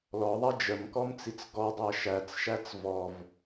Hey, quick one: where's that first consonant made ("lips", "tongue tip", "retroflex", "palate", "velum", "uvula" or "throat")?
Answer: tongue tip